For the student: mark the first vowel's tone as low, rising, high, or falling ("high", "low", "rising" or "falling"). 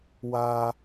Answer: high